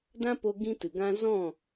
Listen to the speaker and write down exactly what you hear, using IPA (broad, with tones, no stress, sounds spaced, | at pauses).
d ã˦ p o˧ ɡ ĩ˦ t ɨ˨ ɡ ã˦ z ɔ̃˦˨